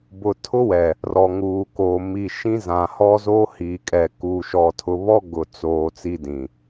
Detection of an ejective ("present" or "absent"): present